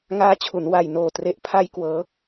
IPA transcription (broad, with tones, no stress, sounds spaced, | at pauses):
ŋ aː˦˥ t͡ɕʰ u˩˦ n w a˨˩ j n oː˨˩ t r e˦˥ ʔ pʰ a˥˩ j k w ɤː˦˥